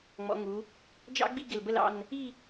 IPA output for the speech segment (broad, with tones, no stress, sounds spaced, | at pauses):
ŋ͡m ɔ̰˩˧ ŋ u˩˧ | d͡ʒ ɑ̰˥ ɡ͡b i˥˧ ɡ ɪ˧˩ l b ə˥˧ l ɑ̰˥˧ n | i˥˧